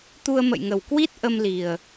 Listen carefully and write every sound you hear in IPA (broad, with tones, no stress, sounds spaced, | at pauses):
t̪ u˧ ə̯ m ə̰˧˨ j ŋ ə˨˩ w k w i˦˥ t̚ ʔ ə˧ m l i˨˩ ə̯